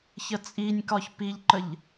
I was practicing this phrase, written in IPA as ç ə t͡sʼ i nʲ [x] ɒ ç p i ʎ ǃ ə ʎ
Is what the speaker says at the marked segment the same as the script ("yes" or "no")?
no